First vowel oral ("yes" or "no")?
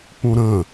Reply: no